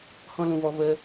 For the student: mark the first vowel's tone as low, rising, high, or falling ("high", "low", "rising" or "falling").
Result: high